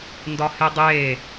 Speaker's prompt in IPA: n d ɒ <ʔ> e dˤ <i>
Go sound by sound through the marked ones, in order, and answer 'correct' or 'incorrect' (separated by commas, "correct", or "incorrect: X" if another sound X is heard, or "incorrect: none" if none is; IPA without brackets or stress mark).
incorrect: h, incorrect: e